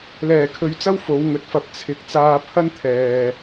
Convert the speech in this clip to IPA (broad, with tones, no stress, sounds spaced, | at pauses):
l ɛː˨˩ kʰ ɵ˨˥ ɥ t͡s ɐ˥ w f o˨˥ w ŋ ɵ˨˥ t̚ f ɐ˧ p̚ t͡sʰ ɪ˧ k̚ t͡s aː˧ pʰ ɐ˥ n t̪ʰ ɛː˨